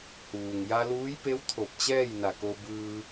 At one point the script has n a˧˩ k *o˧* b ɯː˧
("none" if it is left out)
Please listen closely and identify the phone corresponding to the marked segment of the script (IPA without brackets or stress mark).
o˧